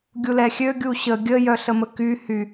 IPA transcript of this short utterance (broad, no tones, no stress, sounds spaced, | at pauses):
ɡʲ u l ɛ xʲ ø ɡʲ u ɕ ə ɡʲ ə j œ ɬ ə m ə k y h y